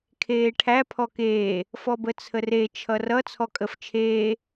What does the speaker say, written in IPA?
kʰ eː ʈʰ æ pʰ ɔ k eː | f ɔ b ə t͡sʰ ə r e t͡ʃʰ ʌ r ʌ t͡sʰ ɔ kʼ ə f t͡ʃʰ eː

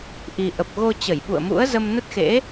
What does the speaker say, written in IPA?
ʔ i˨˩ ʔ ə˨˩ p̚ ɣ o˧ t͡ɕ ə˧˩ j ɓ ṵ˧˨ ə̯ m ṵ˧˥ ə̯ z ə˧ m n ə˦˥ t̚ x ḛ˧˥

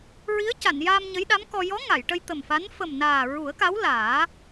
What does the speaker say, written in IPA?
ɹ i˧˥ ə̯ c a˨˩˨ n j aː˧ m ɲ ə˧˥ j ɗ a˧˥ m k ɔ˧ j ɔ˧˥ ŋ a˨˩˨ j ʈ ə˧ j t̪ ə˨˩ m f a˧˥ n f ə˨˩ m n aː˨˩ ɹ u˨˩˦ ə̯ k a˧˥ w l aː˨˩˦

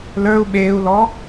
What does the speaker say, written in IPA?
l ə˞ u̯ ɓ eː u̯ l ɔ

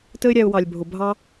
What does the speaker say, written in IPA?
t ə˦ ɪ̯ ɾʲ æ˧ ʊ̯ w ɑ˨ lʲ bʱ ʊ˨ bʱ ɑ˦

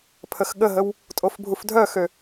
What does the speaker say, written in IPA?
pʰ ə x ɠ ə ɦ ə w | tʼ o f bʱ u f dʱ œ x ø

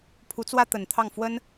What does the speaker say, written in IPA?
pʰ u˧˥ t͡s w ä˥ t̪ ə˨˩ n t̪ʰ ɑ˥˩ ŋ f w ə˥ n

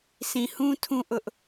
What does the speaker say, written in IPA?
sʰ ĩ˨ h ũ˦ tʰ ũ˦ ʔ ʊ˦ ʔ

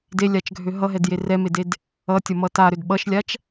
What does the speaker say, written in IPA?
d e lʲ a t͡ʃ ɡʱ ø ɦ ʌ ɦ ɛ d j e r ɛ m e d e d | ʌ tʲ ʌ m ʌ t a ɾ ø d ɓ ʌ ʃ lʲ a t͡ʃ

